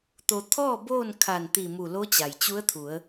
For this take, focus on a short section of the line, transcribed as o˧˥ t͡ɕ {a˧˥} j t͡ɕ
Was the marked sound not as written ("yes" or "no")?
yes